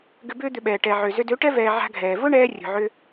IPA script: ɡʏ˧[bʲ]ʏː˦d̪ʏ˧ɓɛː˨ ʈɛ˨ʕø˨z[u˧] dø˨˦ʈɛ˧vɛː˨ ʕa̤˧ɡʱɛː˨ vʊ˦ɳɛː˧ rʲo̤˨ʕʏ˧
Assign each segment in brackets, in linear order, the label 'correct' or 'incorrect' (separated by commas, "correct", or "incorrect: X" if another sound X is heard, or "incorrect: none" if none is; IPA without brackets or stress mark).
incorrect: b, incorrect: ʏ˧